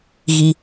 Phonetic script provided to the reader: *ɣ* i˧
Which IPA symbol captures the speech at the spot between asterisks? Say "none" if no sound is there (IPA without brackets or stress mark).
ɣ